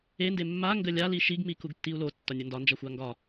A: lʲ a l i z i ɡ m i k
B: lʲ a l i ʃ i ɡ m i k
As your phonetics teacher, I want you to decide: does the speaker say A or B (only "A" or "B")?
B